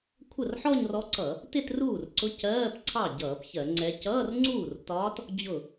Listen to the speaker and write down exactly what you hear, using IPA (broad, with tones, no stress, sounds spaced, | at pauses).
kʷʰ ə˥˩ r ħ ɔ˥˧ ɲ r ɔ˧˥ ǀ ʌ˧˩˧ | t ɪ˥˧ t r uː˥˩ r ǀ ʊ˧˥ c ɜː˧˥˧ p ǀʰ ɑ˥˩ ɟ ʌː˧˩˧ p ç ɜ˧˩˧ ŋ͡ǀ ɛ˧˥ c ʌː˧˥˧ r ŋ͡ǀ uː˥˩ r t ɒː˧˥ t | d͡ʑ ʊ˥˩